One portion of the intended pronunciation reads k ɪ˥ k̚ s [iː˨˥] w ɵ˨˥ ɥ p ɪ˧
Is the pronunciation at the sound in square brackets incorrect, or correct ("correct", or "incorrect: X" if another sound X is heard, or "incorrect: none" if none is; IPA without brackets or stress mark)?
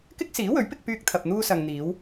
correct